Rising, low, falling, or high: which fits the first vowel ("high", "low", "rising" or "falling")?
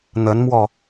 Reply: rising